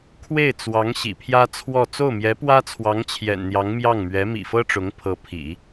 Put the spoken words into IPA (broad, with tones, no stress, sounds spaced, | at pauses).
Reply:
kʰ w e˥˩ ɪ̯ t͡s w ɑ˧˥ ŋ ɕ ḭ˨˩ pʰ j ä˥ t͡sʰ w ɔ˥˧ t͡s o˥˩ ʊ̯ m j ɛ˧˥ p w ä˥ t͡sʰ w ɑ˧˥ ŋ t͡ɕʰ j ɛ̰˨˩ n n̪ j ɑ˧˥ ŋ m j ɑ˥˩ ŋ m ɥ ɛ˧˥ m ḭ˨˩ f ɤ˥ ʈ͡ʂ ʊ˧˥ ŋ pʰ ɤ˧˥ pʰ ḭ˨˩˦